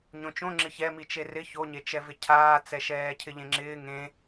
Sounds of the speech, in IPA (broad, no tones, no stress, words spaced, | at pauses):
ɲõt͡ʃõ ŋ͡ǁɪçɛ mit͡ʃerɪ çoɲet͡ʃɛvɪ cʰaːt͡sɛ ʃɛːcʰɪʎẽŋ͡ǁɪː ŋẽ